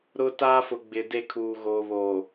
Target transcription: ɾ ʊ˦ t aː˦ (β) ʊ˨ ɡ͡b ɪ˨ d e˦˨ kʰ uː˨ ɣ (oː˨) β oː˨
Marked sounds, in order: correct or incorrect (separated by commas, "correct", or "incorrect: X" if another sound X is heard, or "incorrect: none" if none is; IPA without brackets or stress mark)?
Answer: incorrect: f, correct